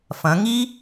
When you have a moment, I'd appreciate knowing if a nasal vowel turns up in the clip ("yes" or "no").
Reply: yes